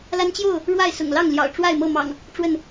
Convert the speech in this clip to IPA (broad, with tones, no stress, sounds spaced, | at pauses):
l a˦ n t͡ɕ j o˥˨ ʊ̯ | ɻ w a˥˨ ɪ̯ s ʊ̰˨˩ ŋ l ɑ˥˨ ŋ l j ɑ̰˨˩ ʊ̯ ʈ͡ʂ w a˥˨ ɪ̯ m ɤ˥˨ m ɑ̰˨˩ ŋ | ʈ͡ʂ w ə˥˨ n